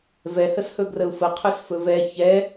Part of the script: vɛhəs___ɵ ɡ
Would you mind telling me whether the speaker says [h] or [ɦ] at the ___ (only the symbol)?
h